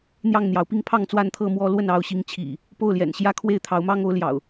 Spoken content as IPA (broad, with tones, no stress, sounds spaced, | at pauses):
n̪ j ɑ˥˨ ŋ n̪ j ɑ˨˦ ʊ̯ p i˦ ŋ pʰ ɑ˥˨ ŋ t͡s w a˥˨ n t̪ʰ ɤ˥˨ m w ɔ˦ l w ə˥˨ n ɑ˨˦ ʊ̯ ɕ i˨˦ ŋ t͡ɕʰ ḭ˨˩ | p o˥˨ ʊ̯ l j ɛ̰˨˩ n ɕ j ä˥˨ kʰ w e˥˨ ɪ̯ t̪ʰ ɑ˨˦ ʊ̯ m ɑ˦ ŋ o˨˦ ʊ̯ l j ɑ̰˨˩ ʊ̯